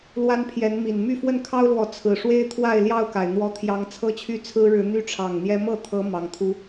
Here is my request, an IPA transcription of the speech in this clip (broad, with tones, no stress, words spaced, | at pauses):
lwa˦npʰjɛ˨˦nmi˨˩n my˥˨fwə˥˨nkʰɑ˦ʊ̯lwɔ˨˦ t͡sʰɹ̩˨˩ ʂwe˦ɪ̯t̪ʰwa˥˨ɪ̯ ljɑ˥˨ʊ̯ka˩ɪ̯n̪wɔ˨˦t̪ʰjɑ˨˦ŋ t͡sʰɤ˦t͡ɕʰy˦t͡sʰɹ̩˦ɻɻ̩˨˦ n̪y˦ʈ͡ʂʰɑ˨˩ŋn̪jɛ˦ mɤ˥˨t̪ʰɤ˨˦ mɑ˨˩ŋt̪ʰu˦